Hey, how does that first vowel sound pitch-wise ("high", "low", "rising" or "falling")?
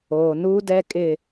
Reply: low